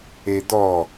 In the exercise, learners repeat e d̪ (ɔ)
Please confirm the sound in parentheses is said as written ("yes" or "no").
yes